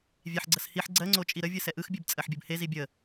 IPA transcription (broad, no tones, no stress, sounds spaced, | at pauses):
vʲ e ħ ɡ͡ǀ ə s h i ħ ɡ͡ǀ ɜ ŋ͡ǀ o t͡ʃʼ i ɾ ə vʲ ɨ s ɛ ʔ ɯ x bʲ ɨ b t͡sʼ ɜ ħ bʲ ɯ b h e z i bʲ ə